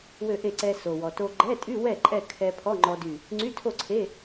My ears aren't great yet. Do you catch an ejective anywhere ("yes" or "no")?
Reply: yes